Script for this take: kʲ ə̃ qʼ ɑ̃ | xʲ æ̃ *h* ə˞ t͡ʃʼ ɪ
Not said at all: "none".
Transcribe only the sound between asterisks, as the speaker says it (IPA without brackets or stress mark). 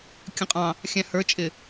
h